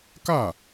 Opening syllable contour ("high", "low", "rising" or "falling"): falling